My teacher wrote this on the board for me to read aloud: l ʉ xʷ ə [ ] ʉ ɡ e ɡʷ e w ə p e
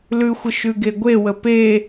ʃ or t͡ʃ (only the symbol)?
ʃ